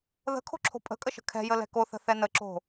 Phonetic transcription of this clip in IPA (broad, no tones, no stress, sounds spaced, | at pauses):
ð ə̤ kʰ o̤ ǁʰ o̤ pʼ ə̤ kʼ ə ʃ ə̤ kʰ ɛ̤ j ə l ɛ̤ k o θ ə̤ θ ɛ n ə ǁ o̤